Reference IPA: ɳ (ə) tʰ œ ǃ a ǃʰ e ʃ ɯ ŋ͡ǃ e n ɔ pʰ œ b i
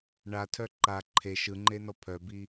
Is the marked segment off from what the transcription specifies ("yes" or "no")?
yes